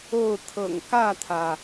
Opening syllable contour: falling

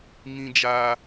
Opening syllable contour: high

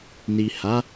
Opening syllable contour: low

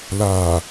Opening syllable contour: low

